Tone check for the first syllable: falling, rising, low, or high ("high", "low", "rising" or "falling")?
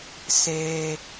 low